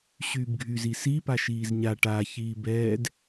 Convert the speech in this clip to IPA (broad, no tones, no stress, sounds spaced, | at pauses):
ɕ yː b ɡʱ y z i s i p a ʃ iː z ɲ a ʈ aː ç iː b ɛː d